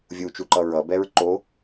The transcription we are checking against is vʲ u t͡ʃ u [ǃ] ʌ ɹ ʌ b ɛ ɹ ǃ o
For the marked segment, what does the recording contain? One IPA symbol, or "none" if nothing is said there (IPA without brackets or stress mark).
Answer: ǃ